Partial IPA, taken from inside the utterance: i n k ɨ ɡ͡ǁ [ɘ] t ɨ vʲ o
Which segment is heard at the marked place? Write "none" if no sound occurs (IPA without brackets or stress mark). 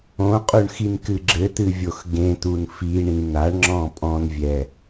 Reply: ɘ